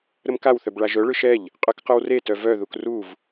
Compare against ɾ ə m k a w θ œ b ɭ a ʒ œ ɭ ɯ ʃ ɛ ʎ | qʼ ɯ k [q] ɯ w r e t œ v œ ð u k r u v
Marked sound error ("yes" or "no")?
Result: no